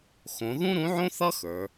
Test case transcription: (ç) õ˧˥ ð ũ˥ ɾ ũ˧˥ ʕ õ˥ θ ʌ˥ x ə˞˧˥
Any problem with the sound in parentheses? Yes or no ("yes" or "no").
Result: yes